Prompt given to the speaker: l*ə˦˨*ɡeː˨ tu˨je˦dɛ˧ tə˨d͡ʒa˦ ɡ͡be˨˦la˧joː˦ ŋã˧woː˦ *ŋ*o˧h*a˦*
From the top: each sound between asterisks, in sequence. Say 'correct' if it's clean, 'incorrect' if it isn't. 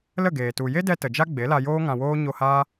correct, incorrect, incorrect

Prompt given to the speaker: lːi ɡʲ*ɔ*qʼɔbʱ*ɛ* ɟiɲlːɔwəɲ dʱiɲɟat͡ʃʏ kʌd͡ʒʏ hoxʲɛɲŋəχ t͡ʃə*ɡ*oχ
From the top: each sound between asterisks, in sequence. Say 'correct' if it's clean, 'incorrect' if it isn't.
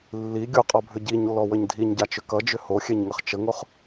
incorrect, incorrect, incorrect

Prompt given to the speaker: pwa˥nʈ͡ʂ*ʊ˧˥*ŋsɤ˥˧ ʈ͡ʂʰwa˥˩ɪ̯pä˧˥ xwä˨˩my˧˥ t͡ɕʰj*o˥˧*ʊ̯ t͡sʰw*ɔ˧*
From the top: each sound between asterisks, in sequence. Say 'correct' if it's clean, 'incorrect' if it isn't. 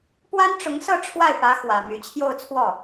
correct, correct, incorrect

